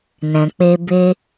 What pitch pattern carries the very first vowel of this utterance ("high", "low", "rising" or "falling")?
low